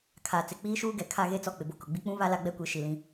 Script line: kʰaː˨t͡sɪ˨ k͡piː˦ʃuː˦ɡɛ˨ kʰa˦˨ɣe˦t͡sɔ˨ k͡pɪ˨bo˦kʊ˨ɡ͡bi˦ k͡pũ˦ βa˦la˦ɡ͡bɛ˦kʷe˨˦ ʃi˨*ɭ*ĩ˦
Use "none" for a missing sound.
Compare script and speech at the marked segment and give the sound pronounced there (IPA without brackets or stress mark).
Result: l